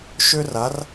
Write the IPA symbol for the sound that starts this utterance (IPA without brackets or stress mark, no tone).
ʃ